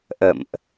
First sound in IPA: ʔ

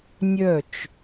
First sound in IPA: nʲ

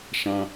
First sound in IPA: ʃ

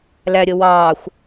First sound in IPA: l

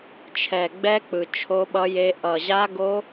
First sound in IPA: t͡ʃʰ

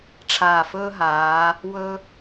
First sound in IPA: ʈ͡ʂʰ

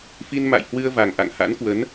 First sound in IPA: f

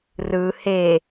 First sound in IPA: r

